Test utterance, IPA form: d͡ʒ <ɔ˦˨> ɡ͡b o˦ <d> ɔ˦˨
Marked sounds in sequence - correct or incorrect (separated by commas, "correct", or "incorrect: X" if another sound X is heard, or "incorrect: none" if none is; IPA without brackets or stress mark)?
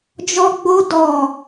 incorrect: ɔ˦, correct